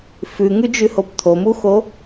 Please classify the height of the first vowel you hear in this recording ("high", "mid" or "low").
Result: high